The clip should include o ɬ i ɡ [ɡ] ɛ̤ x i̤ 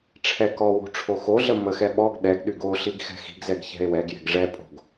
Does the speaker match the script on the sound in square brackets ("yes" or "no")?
no